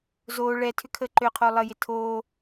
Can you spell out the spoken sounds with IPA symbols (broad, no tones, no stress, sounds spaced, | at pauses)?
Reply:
z oː ɭ ɛ tʰ ʏ kʰ əː ǃ ø qʰ oː lˠ ə j ɪ tʰ oː